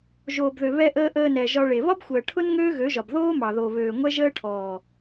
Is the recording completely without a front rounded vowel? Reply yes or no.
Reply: no